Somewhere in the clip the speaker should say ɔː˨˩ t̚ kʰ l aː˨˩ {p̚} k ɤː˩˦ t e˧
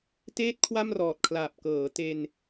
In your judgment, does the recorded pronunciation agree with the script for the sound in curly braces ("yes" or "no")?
yes